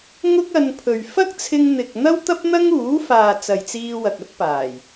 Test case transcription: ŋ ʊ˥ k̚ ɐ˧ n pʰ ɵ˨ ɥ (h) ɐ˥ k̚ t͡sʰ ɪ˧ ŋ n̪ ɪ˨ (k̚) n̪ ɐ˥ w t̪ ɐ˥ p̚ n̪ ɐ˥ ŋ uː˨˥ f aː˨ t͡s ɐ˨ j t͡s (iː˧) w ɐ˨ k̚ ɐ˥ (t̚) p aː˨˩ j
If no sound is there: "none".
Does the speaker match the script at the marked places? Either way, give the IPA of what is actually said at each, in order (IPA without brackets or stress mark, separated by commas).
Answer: f, k̚, iː˧, t̚